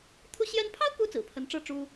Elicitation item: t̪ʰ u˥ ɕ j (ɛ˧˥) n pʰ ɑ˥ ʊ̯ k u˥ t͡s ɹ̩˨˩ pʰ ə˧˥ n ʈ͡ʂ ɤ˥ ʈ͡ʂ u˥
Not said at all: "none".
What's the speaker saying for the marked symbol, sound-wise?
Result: ɛ˥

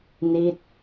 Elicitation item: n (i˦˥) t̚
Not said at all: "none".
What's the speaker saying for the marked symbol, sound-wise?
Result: i˦˥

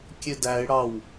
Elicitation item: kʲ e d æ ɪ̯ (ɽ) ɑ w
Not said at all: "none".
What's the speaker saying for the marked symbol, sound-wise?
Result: ɽ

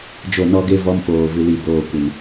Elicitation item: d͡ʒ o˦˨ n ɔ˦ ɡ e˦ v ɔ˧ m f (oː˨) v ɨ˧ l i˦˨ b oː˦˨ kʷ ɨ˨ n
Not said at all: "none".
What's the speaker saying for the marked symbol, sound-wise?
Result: oː˨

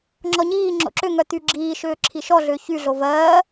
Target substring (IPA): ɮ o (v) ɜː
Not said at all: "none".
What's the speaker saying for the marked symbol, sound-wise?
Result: v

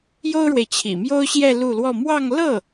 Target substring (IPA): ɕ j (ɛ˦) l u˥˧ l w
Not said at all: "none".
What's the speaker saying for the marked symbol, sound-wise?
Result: ɛ˥˧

